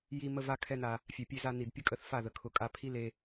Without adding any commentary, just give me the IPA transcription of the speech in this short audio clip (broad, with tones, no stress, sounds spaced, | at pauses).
j i˧ m ə˧ v a˧ kʰ ɛ˦ n a˧ | fʲ ɛ˨ pʲ e˧ z a˧ n i˨ d pʲ ə˦ kʼ ə˦˨ θ f a˦˨ ð ə˨ kʰ ʊ˧ kʼ a˦ pʰ i˦ l e˧